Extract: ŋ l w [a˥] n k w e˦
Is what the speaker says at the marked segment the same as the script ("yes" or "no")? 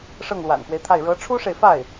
no